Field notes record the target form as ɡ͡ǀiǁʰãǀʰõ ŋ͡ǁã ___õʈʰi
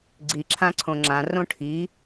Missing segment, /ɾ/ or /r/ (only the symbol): r